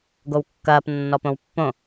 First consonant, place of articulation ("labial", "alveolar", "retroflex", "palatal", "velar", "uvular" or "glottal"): velar